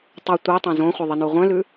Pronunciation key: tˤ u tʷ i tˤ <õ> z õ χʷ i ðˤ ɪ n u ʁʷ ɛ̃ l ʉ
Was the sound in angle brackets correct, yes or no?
yes